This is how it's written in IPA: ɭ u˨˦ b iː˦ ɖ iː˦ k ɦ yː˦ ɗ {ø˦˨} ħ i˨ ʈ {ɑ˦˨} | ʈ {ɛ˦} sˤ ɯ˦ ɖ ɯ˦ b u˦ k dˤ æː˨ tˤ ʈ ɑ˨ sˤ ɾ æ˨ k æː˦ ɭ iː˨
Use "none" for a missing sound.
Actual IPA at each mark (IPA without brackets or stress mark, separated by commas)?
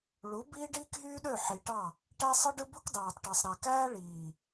ø˦˨, ɑ˦˨, æ˦